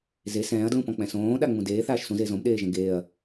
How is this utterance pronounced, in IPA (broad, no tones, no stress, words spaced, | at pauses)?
ze sɛ̃ːɐ̯dlũpɔ̃k͡pɛ̃ sõːɗaŋ͡mũ deːθaːʃ sũze zõmɗeːʒɛ̃ ɡeːɐ̯